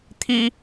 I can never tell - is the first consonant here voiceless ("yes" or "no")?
yes